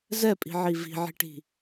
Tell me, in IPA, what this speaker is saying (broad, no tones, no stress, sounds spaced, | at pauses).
z ɛ pʼ i̤ ʕ i v i̤ ʕ i̤ ʈ i̤